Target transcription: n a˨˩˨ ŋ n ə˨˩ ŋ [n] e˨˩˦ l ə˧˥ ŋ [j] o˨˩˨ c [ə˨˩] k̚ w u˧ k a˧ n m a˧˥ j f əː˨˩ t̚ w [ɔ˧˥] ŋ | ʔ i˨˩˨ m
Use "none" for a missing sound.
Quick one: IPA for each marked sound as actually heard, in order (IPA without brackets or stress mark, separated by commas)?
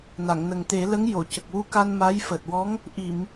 t̪, j, ə˨˩, ɔ˧˥